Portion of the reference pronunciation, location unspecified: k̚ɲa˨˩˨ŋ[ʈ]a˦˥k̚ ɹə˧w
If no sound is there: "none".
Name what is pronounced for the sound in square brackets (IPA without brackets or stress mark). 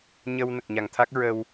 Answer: t̪ʰ